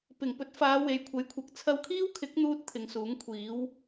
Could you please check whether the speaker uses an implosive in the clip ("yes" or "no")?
no